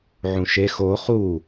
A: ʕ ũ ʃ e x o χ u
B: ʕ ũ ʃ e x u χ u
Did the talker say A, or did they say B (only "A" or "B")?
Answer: A